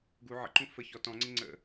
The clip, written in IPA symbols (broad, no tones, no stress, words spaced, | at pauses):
ɡu ʕə̰ǃũ fə çɔ tɔ̃ŋ͡ǀɪ ŋ͡ǀə̰